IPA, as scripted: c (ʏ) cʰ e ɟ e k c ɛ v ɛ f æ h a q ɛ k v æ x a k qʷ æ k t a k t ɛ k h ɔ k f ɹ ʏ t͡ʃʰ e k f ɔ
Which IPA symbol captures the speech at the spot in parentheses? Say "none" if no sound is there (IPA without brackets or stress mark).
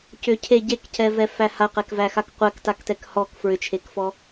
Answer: ʏ